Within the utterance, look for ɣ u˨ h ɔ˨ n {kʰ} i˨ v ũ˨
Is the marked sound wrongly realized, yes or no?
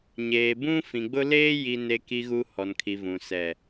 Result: no